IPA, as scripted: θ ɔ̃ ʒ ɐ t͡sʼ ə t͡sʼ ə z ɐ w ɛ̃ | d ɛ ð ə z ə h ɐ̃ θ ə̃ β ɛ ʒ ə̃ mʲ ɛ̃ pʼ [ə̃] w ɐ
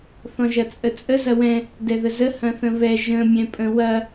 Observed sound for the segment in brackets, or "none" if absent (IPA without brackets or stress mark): ə̃